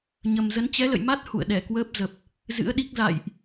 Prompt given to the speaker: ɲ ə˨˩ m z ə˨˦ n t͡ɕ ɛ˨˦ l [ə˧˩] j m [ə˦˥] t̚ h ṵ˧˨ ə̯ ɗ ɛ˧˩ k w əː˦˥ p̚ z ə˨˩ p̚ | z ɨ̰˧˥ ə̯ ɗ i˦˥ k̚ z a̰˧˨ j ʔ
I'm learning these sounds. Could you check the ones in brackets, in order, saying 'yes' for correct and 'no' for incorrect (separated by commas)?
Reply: no, no